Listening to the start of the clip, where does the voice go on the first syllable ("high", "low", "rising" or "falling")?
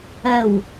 low